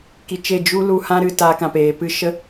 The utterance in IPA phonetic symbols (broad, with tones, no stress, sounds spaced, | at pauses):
k i˧ t͡ʃ e˦˨ d͡ʒ u˦ l u˧ h ã˦ ɾ ɨ˧ t aː˧ k ã˨ p eː˨ p ɨ˦ ʃ ə˦